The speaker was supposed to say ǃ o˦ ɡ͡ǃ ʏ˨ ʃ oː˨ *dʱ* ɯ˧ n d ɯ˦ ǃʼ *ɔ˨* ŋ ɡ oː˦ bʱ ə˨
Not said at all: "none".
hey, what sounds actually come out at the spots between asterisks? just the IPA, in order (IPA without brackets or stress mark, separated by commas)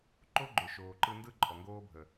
ǃ, ɔ˨